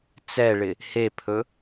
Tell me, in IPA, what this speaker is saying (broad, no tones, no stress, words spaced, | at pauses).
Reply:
t͡sɛɭɪ | hepʰɵ